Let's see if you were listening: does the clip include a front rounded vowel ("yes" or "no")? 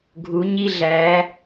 no